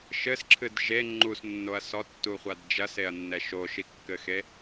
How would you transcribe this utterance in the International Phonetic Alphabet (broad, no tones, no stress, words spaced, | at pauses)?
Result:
ʃɘsǁʰɨd ʒe ŋ͡ǃusnːoɐ̯ sɔtːuχʷad d͡ʒɐseɐ̯nːɛ ʃoʃikːɘxe